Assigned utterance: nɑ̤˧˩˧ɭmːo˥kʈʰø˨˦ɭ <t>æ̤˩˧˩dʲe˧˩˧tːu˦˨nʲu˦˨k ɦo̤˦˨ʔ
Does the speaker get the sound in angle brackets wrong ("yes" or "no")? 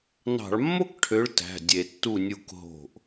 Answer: no